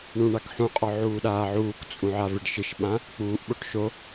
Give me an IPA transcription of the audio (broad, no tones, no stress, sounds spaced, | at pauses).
ɳ ũ ɳ a k ħ ũ qʼ ɔ ʕ uː ɗ aː ʕ uː k t͡sʼ ũ ʕ a v ɪ ɖ ʃ ɪ ʃ ɓ ã | k͡p uː ʔ ɓ o ʈ ʃ o